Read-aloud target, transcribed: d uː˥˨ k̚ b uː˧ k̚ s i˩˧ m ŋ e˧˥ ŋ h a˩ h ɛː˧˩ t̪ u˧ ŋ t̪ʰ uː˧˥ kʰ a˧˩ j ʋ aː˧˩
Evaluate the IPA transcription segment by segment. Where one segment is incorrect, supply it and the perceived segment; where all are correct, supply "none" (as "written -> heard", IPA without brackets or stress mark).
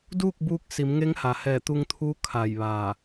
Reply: none